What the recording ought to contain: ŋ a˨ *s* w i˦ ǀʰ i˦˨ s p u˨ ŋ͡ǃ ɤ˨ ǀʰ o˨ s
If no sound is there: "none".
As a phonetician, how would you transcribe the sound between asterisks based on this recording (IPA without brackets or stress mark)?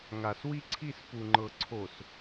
s